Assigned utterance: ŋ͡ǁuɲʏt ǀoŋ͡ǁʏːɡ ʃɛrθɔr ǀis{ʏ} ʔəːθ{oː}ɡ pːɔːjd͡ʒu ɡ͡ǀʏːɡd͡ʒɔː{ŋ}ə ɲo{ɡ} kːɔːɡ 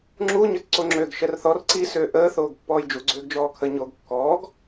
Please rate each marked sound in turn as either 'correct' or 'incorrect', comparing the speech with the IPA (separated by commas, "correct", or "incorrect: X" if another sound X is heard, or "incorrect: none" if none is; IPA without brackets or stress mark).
incorrect: ʏː, correct, incorrect: kʰ, correct